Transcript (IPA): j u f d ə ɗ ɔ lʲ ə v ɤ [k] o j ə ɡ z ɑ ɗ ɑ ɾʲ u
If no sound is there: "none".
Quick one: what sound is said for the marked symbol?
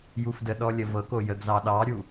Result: k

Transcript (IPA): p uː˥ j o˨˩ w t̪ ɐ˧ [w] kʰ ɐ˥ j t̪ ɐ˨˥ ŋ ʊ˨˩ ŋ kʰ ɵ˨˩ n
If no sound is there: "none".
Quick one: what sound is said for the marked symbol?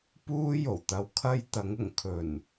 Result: w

